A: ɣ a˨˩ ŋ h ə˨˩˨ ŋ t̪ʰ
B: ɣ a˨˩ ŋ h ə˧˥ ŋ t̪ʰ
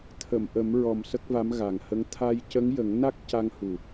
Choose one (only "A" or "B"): B